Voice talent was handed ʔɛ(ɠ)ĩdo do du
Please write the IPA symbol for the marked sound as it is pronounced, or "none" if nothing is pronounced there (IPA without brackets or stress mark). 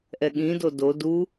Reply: ɠ